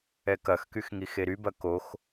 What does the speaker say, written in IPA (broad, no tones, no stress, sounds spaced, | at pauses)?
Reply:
ɛ k ɐ x k y x ŋ i x e ɾ y b ɐ k o x